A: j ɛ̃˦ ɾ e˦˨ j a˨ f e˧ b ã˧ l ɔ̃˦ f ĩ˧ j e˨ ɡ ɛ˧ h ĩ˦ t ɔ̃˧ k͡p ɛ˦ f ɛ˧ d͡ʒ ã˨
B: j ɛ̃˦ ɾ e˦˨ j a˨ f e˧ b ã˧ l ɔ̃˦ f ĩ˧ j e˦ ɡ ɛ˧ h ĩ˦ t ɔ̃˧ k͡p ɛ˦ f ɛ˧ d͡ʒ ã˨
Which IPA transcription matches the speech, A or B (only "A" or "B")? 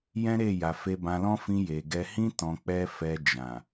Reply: A